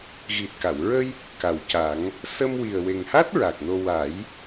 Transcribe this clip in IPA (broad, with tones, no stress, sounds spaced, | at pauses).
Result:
ɣ i˨˩ t̚ k a˨˩˨ w ɹ ə˧ j | k a˨˩ w c a˨˩˦ ŋ | s ə˧ m w i˨˩ ə̯ w e˨˩ ŋ h a˦˥ t̚ ɹ a˨˩ k̚ n o˧ w a˨˩˦ j